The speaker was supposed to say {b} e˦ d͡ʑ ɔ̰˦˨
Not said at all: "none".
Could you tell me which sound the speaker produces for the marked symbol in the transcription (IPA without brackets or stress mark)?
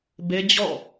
b